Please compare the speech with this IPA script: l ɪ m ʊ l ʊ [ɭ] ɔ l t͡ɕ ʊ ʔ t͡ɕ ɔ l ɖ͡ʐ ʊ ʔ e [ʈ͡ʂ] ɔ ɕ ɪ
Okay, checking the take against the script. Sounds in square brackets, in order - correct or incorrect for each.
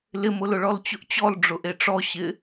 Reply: correct, correct

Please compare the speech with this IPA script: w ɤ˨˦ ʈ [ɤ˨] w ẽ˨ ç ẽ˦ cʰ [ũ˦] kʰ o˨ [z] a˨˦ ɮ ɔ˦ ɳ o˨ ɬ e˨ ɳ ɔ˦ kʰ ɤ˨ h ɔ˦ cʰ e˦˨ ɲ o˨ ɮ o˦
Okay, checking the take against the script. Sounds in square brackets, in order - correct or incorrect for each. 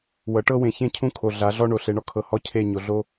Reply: incorrect: ɤ˦, correct, incorrect: ɮ

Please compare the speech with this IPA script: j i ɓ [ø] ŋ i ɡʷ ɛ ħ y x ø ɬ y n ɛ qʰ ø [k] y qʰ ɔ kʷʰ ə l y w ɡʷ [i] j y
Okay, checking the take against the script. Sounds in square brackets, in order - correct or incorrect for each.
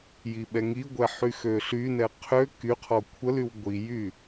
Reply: incorrect: ɛ, correct, correct

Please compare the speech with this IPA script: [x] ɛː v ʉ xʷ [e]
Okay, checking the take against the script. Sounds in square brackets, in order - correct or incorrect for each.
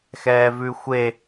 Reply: correct, correct

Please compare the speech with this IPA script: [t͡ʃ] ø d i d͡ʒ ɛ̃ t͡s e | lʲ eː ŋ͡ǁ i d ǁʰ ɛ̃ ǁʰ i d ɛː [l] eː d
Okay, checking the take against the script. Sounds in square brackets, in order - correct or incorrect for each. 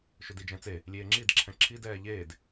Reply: incorrect: ʃ, incorrect: ʎ

